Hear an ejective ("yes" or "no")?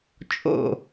yes